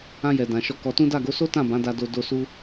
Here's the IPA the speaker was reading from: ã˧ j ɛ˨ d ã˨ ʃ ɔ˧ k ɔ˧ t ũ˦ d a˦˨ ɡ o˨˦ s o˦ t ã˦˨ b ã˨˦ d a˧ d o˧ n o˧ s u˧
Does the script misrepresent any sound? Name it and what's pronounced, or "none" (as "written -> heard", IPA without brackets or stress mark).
n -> d